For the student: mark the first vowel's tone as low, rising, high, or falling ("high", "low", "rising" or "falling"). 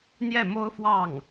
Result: falling